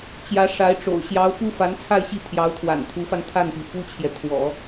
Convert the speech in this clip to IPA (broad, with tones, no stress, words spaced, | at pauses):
t͡ɕjä˧˥ ʂa˧˥ɪ̯ʈ͡ʂo̰˨˩ʊ̯ ɕjɑ˧˥ʊ̯ pu˥fa˧˥n t͡sʰa˥˧ɪ̯ɕi˥˩ t̪ʰjɑ˧˥ʊ̯t̪ʰwa̰˨˩nt̪ʰu˧˥fa˧n t̪ʰa˥˩npi˩ fu˥t͡ɕʰjɛ˨ t̪ʰwɔ̰˨˩˦